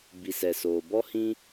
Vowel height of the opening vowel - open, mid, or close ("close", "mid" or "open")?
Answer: close